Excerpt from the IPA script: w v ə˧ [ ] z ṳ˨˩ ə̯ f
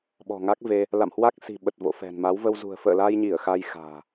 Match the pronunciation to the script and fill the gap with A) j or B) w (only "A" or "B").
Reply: B